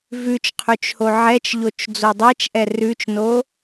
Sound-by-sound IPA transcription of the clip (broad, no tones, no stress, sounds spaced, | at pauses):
v ʉ t͡ʃ qʰ ʉ t͡ʃ h o ʕ ɛ t͡ʃ ʎ o t͡ʃ d͡z o dˤ ɛ t͡ʃ ʔ ɛ r ʉ t͡ʃ n o